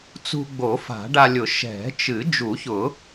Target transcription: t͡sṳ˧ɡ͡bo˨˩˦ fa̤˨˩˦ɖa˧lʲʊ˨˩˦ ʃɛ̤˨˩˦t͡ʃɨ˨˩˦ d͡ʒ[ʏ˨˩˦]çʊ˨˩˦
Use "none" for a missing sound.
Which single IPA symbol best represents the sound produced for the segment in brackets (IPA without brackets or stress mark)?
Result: u˨˩˦